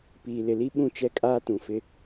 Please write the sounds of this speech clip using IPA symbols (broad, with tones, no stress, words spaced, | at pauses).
piː˨lɪ˨li˦ ɓũ˦t͡ʃɛ˦kʼaː˦ tũ˨fɪ˦